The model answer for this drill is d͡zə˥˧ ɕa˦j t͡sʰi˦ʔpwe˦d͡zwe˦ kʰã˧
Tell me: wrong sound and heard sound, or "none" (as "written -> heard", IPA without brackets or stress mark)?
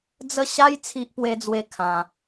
none